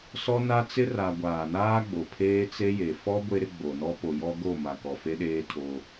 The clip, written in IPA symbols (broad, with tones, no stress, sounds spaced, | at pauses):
s ɔ˦ n a˦ t͡s ɪ˦ r a˨ ɡʷ aː˨ n aː˦ ɡ͡b o˨ pʰ eː˦ t͡s e˦ j e˨ f ɔ˦ ɡʷ e˦ ɾ ɪ˦ ɡ͡b o˨ n ɔ˦ p o˨ j ɔ˦ ɡ o˦˨ m a˨ k ɔ˨ f e˦ ɗ eː˦ tʰ o˦